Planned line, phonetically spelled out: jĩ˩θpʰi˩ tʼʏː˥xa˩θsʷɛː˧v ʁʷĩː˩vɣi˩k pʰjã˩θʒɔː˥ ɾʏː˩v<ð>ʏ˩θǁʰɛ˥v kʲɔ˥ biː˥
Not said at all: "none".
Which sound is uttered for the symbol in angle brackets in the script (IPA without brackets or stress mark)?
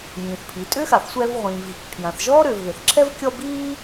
ð